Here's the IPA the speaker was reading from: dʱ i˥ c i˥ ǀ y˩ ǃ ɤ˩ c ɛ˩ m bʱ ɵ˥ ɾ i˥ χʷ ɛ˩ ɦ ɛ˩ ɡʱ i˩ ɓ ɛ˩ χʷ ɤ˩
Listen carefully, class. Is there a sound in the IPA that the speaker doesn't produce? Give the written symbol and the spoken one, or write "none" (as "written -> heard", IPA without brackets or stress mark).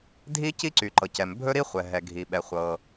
none